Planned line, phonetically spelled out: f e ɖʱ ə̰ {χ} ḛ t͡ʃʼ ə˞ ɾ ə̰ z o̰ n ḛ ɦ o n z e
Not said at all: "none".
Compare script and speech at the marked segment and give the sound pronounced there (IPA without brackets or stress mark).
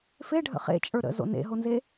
χ